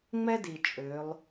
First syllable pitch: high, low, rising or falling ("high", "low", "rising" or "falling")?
high